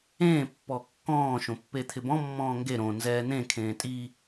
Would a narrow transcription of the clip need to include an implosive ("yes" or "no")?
no